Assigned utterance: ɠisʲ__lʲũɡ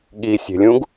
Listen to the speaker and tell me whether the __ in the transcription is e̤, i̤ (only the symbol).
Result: e̤